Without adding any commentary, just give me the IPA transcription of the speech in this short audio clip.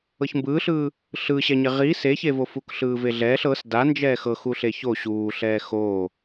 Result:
ɤ ç m b ɯː ɬ ɯː | ɬ ɯ ɕ ɛ ɲ e ʁ i s e ç e v o f u k ɬ ɯː v e ɮ ɛː ɬ ɤ s d a n d͡ʒ ɛː x ɤ x u ɬ e ç o ɕ uː ɬ ɛː x o

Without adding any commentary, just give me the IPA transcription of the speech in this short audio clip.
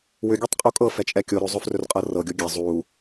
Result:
w ʏ ɡʲ ɤ tˤ qʼ u kʼ ɤ f ɛ t͡ʃʼ ɛ kʲ o ɾ ɵ zˤ ɵ f r ɵ r qʼ ɤ r ɤ ɡʲ o ɡʲ ɛ zˤ u

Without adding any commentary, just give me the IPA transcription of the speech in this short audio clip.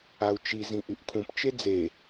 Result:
a u̯ t͡ʃ i z ĩ ʔ y ʔ kʰ ũ p t͡ʃ e d͡z e

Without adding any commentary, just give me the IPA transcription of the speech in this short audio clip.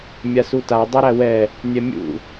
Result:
mʲ a s u t a dˤ i ɾ æ w ɛ | nʲ ɛ mʲ ṵ

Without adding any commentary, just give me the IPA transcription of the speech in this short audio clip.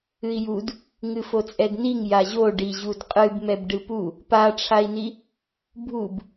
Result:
ɨ i̯ j u d | ŋ ɨ f o t͡sʼ ɛ d n i ŋ j a ʑ o ɖ i ʑ u d qʼ ɨ b m ɛ b ɖ ɨ p u | p a ʈ͡ʂʰ a i̯ n i | bʱ u b

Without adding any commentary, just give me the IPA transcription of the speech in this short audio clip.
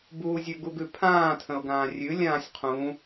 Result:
b uː zʲ ʉ ɡ u ɡ ʉ pʰ ãː tʰ ə̃ ʊ̯ ɡ ãː rʲ ʉ lʲ ãː sʲ qʰ ũ

